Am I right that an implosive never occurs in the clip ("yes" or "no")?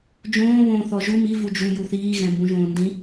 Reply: yes